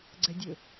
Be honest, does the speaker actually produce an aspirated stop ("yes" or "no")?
no